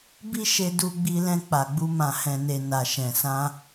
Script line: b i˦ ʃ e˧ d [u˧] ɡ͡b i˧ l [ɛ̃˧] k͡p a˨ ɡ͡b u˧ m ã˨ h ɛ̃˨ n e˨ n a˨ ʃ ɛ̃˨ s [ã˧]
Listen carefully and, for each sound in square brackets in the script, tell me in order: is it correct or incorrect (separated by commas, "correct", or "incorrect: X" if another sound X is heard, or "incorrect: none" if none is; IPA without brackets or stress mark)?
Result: correct, correct, correct